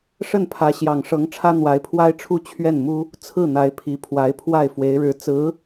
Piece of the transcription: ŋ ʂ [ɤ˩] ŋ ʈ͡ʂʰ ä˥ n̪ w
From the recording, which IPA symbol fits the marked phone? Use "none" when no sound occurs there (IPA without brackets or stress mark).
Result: ɤ˧˥